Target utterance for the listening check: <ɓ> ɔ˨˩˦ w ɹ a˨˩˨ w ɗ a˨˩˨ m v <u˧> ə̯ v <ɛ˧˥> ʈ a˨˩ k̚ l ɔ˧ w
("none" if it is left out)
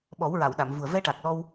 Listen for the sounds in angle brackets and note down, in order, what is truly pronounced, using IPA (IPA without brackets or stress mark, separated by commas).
ɓ, u˨˩, ɛ˧